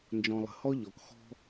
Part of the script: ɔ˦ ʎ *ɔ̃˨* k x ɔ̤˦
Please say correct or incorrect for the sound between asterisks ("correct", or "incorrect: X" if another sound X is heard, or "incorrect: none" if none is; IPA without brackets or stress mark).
incorrect: ɔ˨